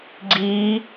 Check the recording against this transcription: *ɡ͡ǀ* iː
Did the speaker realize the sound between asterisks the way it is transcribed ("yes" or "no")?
yes